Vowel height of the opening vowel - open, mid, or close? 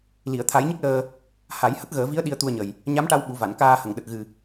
close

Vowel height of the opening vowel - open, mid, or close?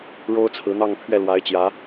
mid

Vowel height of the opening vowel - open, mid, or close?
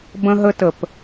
mid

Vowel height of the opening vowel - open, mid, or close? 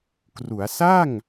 close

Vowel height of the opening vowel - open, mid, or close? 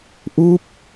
close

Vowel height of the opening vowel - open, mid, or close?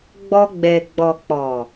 mid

